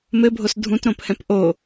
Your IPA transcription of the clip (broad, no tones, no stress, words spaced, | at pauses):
mɘbʱos dʱũtɾõphɛ̃p ʔo